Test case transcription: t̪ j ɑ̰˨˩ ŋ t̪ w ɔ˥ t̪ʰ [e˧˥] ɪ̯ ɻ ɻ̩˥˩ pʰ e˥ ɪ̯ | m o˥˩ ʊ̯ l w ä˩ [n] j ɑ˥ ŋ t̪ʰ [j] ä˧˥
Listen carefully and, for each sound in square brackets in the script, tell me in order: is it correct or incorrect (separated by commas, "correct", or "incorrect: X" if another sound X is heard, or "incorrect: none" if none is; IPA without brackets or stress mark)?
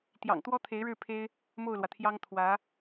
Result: correct, incorrect: t̪ʰ, incorrect: w